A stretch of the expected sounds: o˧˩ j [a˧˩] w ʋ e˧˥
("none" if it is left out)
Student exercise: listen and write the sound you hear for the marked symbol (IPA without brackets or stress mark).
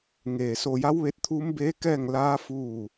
a˧˥